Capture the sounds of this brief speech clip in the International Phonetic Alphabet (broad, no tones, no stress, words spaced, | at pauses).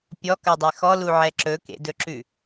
pʲɔkɜdˤe xɔluʕɛ ǁɵkḛdɵǁʉ